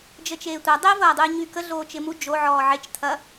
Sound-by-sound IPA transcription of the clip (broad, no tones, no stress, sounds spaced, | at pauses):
d͡ʒ ə t͡ʃ eː tʷ ɐ dˤ e v ɐː dˤ u j ɲ y k ə ɮ oː t͡ʃ ɪ m u d͡ʒ o ʕ ɔː ʕ e t͡ʃ tʰ ɐ